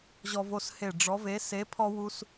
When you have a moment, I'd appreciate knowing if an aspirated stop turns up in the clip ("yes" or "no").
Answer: yes